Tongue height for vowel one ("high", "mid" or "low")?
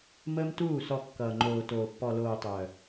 mid